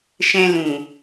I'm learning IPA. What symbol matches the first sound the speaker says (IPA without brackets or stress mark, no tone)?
ʃ